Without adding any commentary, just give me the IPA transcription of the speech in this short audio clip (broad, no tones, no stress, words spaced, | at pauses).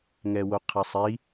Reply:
ŋɛwoqʰɛsˤi